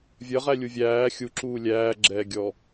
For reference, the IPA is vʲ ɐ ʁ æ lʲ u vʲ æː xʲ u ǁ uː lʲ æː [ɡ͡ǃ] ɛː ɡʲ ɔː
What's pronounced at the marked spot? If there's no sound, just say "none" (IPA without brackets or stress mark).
ɡ͡ǁ